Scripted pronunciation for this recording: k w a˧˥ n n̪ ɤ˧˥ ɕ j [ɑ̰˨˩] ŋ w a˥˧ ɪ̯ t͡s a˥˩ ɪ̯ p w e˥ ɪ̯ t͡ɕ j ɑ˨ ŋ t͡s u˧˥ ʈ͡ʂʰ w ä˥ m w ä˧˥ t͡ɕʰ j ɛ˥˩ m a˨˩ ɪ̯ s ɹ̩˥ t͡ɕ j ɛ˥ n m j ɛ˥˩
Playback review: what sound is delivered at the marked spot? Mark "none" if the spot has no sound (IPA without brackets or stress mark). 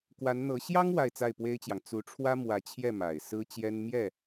ɑ˥